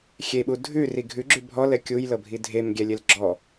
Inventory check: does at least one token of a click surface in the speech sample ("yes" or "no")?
yes